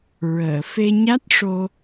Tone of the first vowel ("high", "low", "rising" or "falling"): low